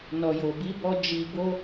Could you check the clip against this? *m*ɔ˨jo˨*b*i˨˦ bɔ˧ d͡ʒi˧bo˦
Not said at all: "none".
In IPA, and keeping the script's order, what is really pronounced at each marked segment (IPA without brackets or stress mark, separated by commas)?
n, b